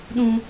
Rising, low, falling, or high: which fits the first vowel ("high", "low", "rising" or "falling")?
low